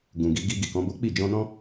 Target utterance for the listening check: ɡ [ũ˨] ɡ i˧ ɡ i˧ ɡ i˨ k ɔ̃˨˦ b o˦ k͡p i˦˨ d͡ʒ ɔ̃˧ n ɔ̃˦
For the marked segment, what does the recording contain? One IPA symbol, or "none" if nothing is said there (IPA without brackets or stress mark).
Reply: ũ˨